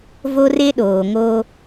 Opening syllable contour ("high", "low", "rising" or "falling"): high